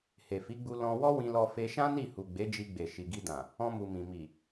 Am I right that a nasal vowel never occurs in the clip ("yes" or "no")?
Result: no